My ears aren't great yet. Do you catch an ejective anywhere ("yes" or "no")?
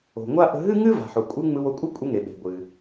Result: yes